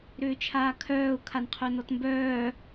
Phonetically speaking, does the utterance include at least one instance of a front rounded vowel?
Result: yes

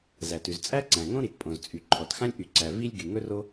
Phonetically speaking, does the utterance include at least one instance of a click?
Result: yes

